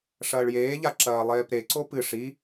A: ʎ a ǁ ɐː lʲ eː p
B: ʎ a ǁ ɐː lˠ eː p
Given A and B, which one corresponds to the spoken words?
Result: B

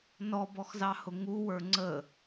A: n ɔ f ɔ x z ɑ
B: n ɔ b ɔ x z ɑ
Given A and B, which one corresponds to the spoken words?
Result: B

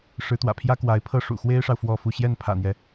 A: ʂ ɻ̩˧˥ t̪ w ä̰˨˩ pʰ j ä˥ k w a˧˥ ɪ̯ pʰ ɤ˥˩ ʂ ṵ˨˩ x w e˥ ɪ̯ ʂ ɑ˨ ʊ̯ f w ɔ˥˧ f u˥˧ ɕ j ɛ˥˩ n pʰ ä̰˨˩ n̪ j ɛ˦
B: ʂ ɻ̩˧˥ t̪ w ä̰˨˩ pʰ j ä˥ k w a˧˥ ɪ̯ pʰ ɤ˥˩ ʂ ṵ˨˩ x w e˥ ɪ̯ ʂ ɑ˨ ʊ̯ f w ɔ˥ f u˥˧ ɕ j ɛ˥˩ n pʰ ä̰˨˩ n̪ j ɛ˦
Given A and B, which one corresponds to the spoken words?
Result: A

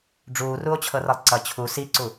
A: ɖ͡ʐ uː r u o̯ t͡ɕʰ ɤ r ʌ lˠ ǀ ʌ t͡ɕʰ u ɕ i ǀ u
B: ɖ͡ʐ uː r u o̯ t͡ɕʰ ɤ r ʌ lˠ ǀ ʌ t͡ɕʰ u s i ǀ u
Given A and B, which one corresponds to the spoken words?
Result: B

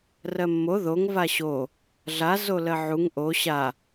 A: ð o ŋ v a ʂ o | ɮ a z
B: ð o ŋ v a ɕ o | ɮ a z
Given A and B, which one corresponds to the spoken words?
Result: B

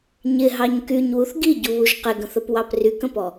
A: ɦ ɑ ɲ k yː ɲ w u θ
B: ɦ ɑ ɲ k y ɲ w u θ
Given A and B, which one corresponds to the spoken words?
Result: B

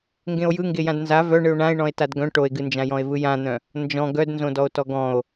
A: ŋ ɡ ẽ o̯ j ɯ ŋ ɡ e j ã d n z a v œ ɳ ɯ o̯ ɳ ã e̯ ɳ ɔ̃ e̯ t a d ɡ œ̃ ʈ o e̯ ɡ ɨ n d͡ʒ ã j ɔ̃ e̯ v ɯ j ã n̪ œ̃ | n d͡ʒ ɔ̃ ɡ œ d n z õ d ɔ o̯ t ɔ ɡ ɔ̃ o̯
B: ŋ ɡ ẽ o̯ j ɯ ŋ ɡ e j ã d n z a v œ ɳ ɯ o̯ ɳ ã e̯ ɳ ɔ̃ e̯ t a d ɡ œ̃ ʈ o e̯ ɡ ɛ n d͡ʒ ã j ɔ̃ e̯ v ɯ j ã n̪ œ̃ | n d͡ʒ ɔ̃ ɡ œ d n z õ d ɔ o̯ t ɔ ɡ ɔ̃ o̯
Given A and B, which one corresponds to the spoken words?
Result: A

